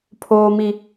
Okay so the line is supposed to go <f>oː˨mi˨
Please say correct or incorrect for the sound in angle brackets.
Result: incorrect